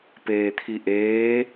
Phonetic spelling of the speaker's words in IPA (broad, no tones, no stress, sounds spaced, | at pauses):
p eː t̪ʰ i ʔ eː